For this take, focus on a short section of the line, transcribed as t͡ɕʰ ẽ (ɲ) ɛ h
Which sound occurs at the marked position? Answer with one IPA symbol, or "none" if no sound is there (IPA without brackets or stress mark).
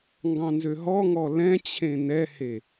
n